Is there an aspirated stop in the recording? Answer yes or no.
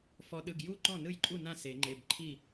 yes